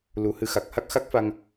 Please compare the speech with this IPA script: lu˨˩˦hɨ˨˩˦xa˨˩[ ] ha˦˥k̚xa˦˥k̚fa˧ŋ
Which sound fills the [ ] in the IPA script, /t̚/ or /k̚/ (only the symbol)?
k̚